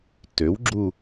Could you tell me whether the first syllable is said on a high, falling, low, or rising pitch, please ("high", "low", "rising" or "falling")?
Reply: rising